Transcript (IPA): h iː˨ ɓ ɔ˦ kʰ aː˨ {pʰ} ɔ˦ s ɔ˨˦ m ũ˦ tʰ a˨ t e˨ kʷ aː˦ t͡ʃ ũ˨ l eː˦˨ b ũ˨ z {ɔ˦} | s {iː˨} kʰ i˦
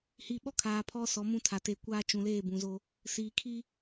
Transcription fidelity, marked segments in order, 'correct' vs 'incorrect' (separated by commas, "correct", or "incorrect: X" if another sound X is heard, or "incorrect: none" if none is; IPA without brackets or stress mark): correct, incorrect: o˦, correct